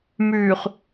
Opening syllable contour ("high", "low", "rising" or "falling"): low